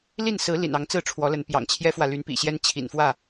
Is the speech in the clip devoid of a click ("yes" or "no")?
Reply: yes